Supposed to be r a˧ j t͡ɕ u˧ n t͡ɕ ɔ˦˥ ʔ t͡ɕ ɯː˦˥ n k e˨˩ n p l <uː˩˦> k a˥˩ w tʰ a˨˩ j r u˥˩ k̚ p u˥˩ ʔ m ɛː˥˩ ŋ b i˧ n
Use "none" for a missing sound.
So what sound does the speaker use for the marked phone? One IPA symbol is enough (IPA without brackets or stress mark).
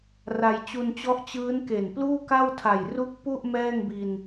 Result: uː˥˩